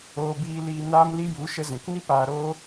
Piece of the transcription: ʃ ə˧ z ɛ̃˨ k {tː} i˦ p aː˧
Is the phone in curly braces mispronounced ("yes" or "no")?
yes